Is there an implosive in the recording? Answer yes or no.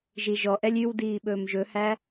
yes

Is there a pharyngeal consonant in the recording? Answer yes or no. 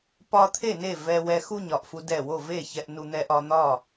no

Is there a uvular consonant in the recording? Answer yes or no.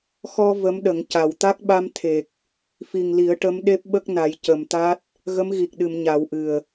no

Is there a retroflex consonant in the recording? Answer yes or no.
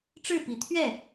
yes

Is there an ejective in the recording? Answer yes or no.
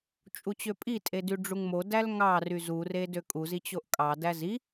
yes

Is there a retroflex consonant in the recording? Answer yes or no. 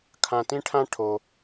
yes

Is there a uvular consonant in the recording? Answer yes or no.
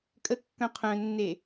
yes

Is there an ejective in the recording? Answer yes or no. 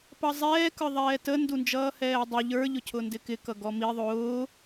no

